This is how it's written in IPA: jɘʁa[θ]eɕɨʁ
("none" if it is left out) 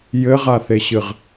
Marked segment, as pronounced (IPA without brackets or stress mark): θ